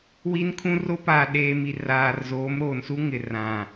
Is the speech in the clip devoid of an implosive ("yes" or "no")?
no